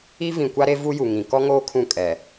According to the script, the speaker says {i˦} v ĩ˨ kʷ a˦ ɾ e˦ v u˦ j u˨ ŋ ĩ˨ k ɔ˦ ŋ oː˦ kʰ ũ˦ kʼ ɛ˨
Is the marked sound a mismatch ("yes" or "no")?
no